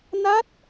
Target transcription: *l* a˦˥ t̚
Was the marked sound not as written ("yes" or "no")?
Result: yes